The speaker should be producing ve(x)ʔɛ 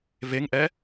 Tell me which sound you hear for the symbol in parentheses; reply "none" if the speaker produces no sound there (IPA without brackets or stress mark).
ŋ